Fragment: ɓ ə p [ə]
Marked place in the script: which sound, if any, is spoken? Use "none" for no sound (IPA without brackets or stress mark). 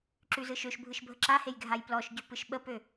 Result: ø